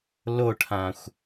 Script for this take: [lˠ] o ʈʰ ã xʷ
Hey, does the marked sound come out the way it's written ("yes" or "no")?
no